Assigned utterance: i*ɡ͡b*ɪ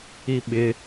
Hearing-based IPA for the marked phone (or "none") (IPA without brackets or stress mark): ɓ